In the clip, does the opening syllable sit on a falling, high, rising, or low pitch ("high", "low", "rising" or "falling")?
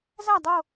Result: falling